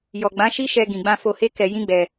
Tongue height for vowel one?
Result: mid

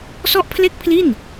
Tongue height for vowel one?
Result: mid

